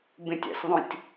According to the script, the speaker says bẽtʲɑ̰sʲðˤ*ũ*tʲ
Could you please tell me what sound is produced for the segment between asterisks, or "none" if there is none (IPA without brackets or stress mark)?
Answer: õ